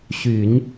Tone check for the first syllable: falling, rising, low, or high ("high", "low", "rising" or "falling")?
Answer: low